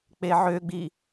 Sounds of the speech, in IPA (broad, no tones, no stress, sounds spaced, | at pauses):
k͡p e ʕ ø ɡ͡b i